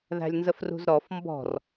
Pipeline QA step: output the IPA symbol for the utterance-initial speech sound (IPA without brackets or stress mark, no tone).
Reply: ð